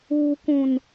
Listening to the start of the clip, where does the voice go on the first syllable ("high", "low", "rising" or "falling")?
low